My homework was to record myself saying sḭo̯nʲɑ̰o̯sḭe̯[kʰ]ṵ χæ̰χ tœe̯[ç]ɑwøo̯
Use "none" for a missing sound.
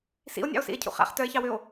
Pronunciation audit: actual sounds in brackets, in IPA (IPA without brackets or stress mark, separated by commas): cʰ, ç